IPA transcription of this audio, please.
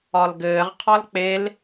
ɒ l ɡ ɘː ʁ qʰ ɒ l k͡p e l

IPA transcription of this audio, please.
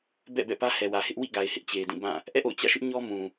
b ɛ̰˦˨ b ɛ̰˦˨ p ä˦ h ɛ˨ w ä˨ h ɪ˦ ʔ w ḭ˦˨ ɡ a˨ ɪ̯ h ɪ˦ ʔ t͡ɕ e˨ ɪ̯ d ĩ˦˨ b ã˦˨ | ʔ ɛ̰˦˨ ʔ o̰˦˨ ʊ̯ t͡ɕ ä̰˦˨ ʃ ɪ˦ ʔ ɲ ɔ˦ m ũ˨

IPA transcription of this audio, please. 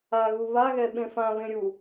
a ɣ u β a ɣ ɛ ɓ ẽ f ã β ẽ ɾʲ u

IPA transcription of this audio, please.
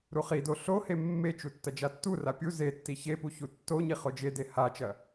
ɾ u χ i d o ɬ o h e mː e t͡ʃ u tː ɐ d͡ʒ a tː u r a pʲ u z e tː i ç e p u ç u tː o ɲ i χ o d͡ʒ e d e h a t͡ʃ ɐ

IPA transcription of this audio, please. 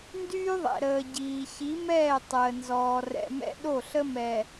n d yː˦ ðˤ ɛ̰˨ ɾ əː˨ ɟ iː˨ ç i˨˦ m ɛː˦˨ tˤ əː˨ n z ɔː˨ r ɛ̰˨ m ɛ̰˦ ɗ o˦˨ ɬ ə˦ m ɛ˨

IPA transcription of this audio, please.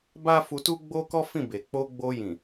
b a˦ f u˧ t u˦ ɡ͡b o˦ k ɔ˦ f ĩ˦˨ b e˨ k͡p o˧ ɡ͡b o˧ j ĩ˨

